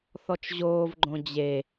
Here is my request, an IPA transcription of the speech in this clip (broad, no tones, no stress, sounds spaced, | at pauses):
θ ɔ t͡ʃ ʑ oː v ɡ͡ǃ õ d͡ʑ e